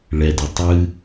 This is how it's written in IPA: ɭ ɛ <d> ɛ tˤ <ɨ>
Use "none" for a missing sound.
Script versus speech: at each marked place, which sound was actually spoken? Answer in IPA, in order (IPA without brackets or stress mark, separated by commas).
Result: d, ɨ